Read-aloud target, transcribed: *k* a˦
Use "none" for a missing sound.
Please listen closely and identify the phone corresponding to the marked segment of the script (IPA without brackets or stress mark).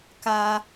k